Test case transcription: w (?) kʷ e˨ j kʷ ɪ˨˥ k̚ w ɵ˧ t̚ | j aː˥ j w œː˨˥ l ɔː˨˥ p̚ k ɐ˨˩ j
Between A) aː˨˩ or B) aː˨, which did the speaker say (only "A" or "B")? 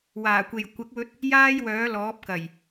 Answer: A